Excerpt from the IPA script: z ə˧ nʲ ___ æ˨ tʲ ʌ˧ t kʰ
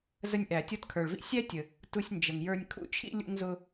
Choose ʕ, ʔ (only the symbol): ʔ